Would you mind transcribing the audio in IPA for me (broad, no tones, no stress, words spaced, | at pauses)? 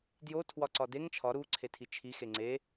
djo tʰwɒǀɒdeŋ t͡ʃʰɒ ɾu ǀʰetʰit͡ʃʰi xeŋ͡ǀe